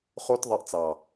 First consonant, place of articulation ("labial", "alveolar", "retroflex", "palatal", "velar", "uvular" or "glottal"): uvular